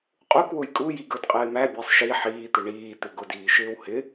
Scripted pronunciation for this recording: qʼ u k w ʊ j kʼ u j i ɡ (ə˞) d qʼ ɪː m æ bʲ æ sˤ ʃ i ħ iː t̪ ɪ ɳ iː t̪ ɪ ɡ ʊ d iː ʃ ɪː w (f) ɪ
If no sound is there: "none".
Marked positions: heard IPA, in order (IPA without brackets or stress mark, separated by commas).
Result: ə˞, h